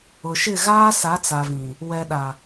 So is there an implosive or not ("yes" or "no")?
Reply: yes